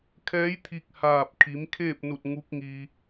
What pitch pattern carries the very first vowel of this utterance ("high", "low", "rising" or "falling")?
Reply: rising